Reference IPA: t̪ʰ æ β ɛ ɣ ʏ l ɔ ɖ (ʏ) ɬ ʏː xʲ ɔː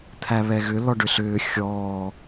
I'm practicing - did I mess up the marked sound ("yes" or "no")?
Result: no